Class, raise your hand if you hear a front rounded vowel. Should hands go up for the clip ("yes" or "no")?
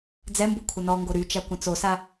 yes